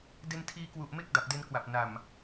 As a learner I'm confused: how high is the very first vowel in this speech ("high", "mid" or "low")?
mid